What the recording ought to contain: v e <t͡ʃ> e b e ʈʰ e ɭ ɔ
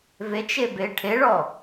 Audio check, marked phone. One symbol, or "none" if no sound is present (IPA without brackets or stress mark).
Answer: t͡ʃ